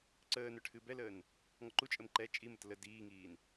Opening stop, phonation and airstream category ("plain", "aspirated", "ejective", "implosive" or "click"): click